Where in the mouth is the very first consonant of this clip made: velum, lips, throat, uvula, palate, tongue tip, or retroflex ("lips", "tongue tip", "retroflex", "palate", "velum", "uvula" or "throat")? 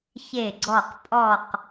palate